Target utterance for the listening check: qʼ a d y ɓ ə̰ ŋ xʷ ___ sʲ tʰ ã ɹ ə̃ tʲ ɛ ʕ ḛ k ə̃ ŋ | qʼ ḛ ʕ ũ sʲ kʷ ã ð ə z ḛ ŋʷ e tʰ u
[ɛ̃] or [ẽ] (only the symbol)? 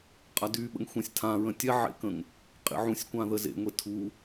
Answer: ɛ̃